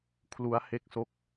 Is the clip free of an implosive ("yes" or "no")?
yes